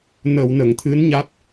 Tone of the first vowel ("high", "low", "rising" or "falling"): low